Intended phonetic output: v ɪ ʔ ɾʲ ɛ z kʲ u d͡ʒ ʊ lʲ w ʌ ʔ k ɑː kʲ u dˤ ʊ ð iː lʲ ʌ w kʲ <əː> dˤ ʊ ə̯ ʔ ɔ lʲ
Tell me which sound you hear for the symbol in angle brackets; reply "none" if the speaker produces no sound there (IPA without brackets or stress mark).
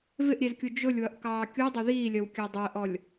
əː